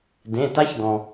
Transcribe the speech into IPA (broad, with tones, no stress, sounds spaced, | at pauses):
d ẽ˩˧˩ t a˦˥ ç d ɔ̃˩